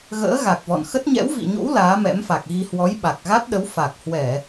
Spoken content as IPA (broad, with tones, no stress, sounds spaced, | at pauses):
ɣ ə̰ː˧˥ ɣ a˨˩ k̚ v ɔ̰˧˨ n x ə˦˥ t̚ ɲ ɛ̰˧˥ w v ḭ˧˨ ɲ o̰˧˥ w l aː˨˦ m ɛ̰˧˥ m f a˨˩ k̚ ɣ i˧ h w ɔ˨˦ j ɓ a˨˩ k̚ ɣ a˦˥ t̚ ɗ ə˨˦ w f a˨˩ k̚ h w ɛ˧˩˨